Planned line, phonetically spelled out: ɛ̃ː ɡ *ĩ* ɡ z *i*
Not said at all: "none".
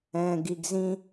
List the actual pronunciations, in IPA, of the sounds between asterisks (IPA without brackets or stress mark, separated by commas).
i, ĩ